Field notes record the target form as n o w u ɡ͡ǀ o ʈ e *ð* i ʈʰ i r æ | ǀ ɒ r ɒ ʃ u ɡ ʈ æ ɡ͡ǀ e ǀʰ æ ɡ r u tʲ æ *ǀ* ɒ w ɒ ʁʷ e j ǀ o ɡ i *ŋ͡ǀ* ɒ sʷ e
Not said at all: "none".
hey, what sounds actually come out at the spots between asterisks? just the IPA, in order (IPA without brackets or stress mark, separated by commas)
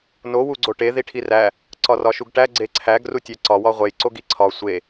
ð, ǀ, ǀʰ